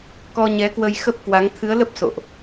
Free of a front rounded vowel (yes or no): yes